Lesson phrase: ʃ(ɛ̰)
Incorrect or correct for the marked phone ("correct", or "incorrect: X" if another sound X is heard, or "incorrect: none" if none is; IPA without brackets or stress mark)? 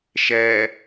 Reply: incorrect: ɛ